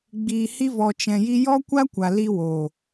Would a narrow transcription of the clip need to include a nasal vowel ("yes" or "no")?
yes